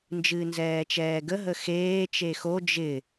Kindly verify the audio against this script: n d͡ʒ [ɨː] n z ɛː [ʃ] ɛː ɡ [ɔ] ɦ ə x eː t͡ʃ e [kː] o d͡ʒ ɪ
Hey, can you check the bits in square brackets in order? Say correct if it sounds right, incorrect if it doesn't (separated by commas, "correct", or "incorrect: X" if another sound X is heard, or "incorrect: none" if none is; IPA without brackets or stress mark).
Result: correct, incorrect: t͡ʃ, incorrect: ə, incorrect: x